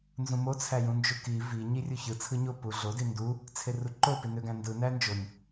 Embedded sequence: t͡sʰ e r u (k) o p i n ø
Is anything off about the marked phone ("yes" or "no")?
yes